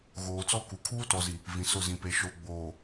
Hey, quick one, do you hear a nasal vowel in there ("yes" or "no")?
yes